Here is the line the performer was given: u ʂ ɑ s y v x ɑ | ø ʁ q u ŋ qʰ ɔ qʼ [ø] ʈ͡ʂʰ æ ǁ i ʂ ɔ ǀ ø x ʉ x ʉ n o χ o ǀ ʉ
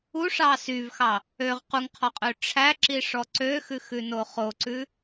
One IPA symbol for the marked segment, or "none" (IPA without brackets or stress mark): ø